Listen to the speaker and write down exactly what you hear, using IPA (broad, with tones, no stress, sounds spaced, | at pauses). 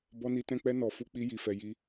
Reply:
b ɔ˧ n i˧ t ɛ̃˧ k͡p ɛ˧ n ɔ˨ f u˨˦ k͡p i˧ j i˨ f ɛ˨ j i˧